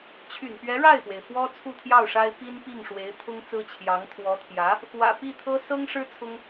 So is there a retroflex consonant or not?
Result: yes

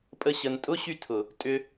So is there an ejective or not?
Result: yes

